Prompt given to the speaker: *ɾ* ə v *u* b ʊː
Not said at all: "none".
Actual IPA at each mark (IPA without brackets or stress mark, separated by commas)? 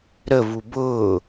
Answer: ɾ, u